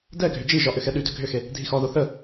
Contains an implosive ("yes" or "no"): yes